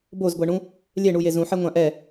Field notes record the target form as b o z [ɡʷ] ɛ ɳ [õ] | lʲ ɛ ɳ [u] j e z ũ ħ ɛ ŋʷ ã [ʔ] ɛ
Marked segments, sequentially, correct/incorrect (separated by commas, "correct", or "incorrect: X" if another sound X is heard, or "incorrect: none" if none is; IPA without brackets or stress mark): correct, incorrect: ũ, correct, correct